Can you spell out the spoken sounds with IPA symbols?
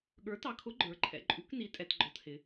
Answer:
ɠ ə˞˩˥ t ɑ˩˥ kʰ ʊ˩˥ ɡ͡ǃ ə˞˩˧ ǃʰ ɛ̰˩˧ ǃʼ u˩˥ k n i˩˥ tʼ ɛ˩˧ t ɡ͡ǃ ɔ˩˧ t h ɪ˩˧

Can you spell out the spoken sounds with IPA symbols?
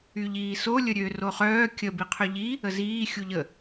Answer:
y ʎ iː s o lʲ ə ɾʲ ø r o χ œː kʲ ə b i qʰ ø ʎ i | ə z iː xʲ u ʎ ə

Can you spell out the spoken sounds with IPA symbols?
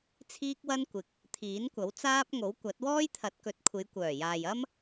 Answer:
t͡sʰ iː˥ k̚ w ɐ˥ n kʷ ɪ˨ k̚ | t̪ʰ iː˨˥ n kʷ ɐ˨˥ w t͡s aː˥ p̚ ŋ o˨˥ w kʷ ɐ˨˥ t̚ w ɔː˥ j t̪ʰ ɐ˨˥ t̚ k ɵ˨˥ t̚ kʷʰ e˨˧ j kʷ œː˨˩ j aː˨ j ɐ˥ m

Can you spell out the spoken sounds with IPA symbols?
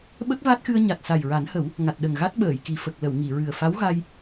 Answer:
ɓ ə˦˥ k̚ v a˦˥ t̚ x ɨ˧ ə̯ ɲ a˨˩ t̚ s a˨˩ j ɹ a˨˩˦ n h ə˨˩˦ w | ŋ a˨˩ t̚ ɗ ə˨˩ ŋ ɣ a˦˥ t̚ ɓ əː˨˩˨ j k i˨˩ f ə˨˩ k̚ l ə˨˩˨ w ŋ i˨˩˨ ɹ ɨ˨˩ ə̯ f a˧˥ w ɣ a˧ j

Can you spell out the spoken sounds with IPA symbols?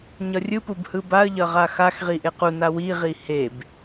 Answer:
ɲ ʌ rʲ ɯ p u b h ɯ b a ə̯ ʎ ʌ ʁ a x a x ʁ i ʔ e q u n a w i ʁ i h e b

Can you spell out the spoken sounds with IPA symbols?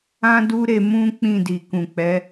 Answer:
ã˦ d u˦ ɾ e˧ m ũ˦ k͡p ĩ˦˨ d i˨ k ũ˨ k͡p ɛ˨˦

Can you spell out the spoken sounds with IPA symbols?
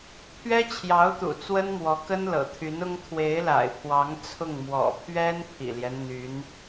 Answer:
pʰ ɥ ɛ˥ t͡ɕʰ j ɑ˧˥ ʊ̯ t̪ ṵ˨˩ t͡s w ə˥ n m w ɔ˧˥ k ə˥ n l ɤ̰˨˩ t̪ʰ y˧˥ n ʊ˥ ŋ t̪ʰ w e˧˥ ɪ̯ l a̰˨˩ ɪ̯ pʰ w ɑ˧˥ ŋ t͡sʰ ʊ˥˩ ŋ m w ɔ̰˨˩ pʰ ɥ ɛ˥ n pʰ ḭ˨˩ l j ɛ˦ n n̪ y˧˥ n

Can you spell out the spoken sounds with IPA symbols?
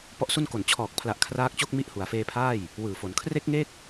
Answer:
p ɔ˦˥ ʔ s u˥˩ n k o˨˩ n t͡ɕʰ ɔː˨˩ k̚ pʰ l a˨˩ ʔ kʰ r aː˦˥ k̚ t͡ɕ o˥˩ k̚ m i˦˥ ʔ h u˩˦ a̯ f eː˧ pʰ aː˥˩ j | w ɯː˨˩ f o˩˦ n kʰ r e˦˥ k̚ ŋ e˦˥ k̚

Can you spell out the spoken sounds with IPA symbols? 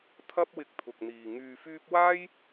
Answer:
t̪ʰ ɐ˥ p̚ w ɪ˧ k̚ t̪ʰ ʊ˨ k̚ n̪ iː˨ ŋ yː˧ f yː˥ p̚ w aː˥ j

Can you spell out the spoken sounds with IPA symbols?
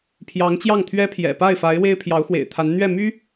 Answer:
pʰ j ɑ˧˥ ŋ t͡ɕ j ɑ˥˩ ŋ t̪ʰ ɥ ɛ˥ pʰ j ɛ̰˨˩ p a˥˩ ɪ̯ f a˧˥ ɪ̯ w e˥ ɪ̯ pʰ j ɑ˧˥ ʊ̯ x w ḛ˨˩ ɪ̯ t̪ʰ a˧˥ n n̪ ɥ ɛ˥˩ m y˥

